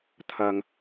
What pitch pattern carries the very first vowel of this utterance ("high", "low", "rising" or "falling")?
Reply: low